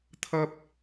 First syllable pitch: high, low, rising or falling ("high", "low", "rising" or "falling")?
high